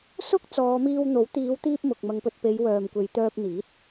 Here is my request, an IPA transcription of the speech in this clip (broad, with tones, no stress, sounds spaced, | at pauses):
s ʊ˥ k̚ t͡s ɔː˨˧ m iː˧ w n̪ o˨˥ w t̪ iː˨˧ w t̪ iː˧ p̚ m ʊ˨ k̚ m ɐ˨˧ ŋ p ɵ˨ t̚ p e˨˧ j w œː˨ m kʷ e˨˧ j t̪ œː˧ p̚ n̪ iː˨˥ t̚